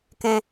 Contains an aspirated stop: no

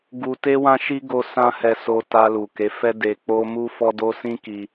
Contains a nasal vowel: yes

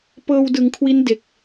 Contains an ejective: no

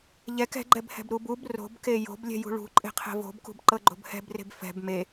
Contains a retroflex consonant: yes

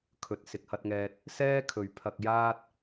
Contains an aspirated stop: yes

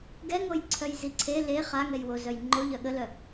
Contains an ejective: no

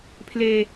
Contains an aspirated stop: yes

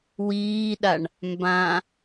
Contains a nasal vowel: yes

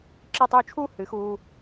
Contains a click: yes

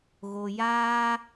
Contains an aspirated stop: no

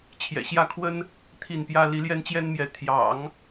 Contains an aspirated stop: yes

